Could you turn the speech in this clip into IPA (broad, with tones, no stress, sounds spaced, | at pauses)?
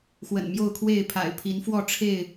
x w ə̰˨˩ n m j o˥˨ ʊ̯ kʰ w e˥˨ ɪ̯ pʰ a̰˨˩ ɪ̯ pʰ i˨˦ n f w ɔ˥˨ ʈ͡ʂʰ e˥˨ ɪ̯